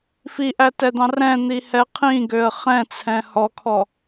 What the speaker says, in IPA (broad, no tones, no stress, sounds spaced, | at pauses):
f i ʔ æ t ɛ d̪ ɑ̃ r ɛ̃ n̪ i h ɛ qʰ ĩ ɡ ø ə̯ χ ɛ̃ t͡sʰ ɛ̃ h ɔ kʰ ɔ